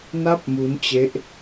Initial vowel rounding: unrounded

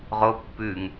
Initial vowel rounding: rounded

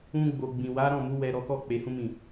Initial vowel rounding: rounded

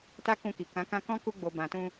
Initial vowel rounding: unrounded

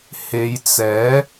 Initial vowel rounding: unrounded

